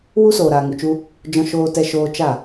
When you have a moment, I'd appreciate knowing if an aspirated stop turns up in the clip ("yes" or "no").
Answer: no